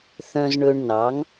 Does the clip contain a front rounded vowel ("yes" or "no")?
yes